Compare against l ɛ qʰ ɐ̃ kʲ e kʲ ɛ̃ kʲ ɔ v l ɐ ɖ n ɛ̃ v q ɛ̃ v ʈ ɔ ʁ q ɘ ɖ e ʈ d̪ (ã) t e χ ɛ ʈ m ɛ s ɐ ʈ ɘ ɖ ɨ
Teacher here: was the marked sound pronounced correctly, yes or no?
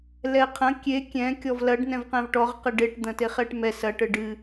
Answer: no